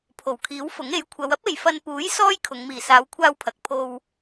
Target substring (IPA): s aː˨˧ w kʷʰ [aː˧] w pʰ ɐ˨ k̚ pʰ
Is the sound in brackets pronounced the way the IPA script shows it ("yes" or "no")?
yes